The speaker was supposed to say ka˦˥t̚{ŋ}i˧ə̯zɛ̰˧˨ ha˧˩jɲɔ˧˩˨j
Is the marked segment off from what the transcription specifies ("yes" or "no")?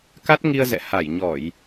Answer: no